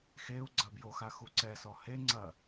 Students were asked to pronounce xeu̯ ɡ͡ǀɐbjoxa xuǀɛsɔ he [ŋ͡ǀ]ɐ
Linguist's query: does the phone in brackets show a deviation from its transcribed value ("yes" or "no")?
no